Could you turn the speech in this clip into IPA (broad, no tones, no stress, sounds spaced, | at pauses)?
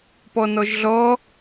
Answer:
p ɔ n ɔ ʒ ɮ ɔ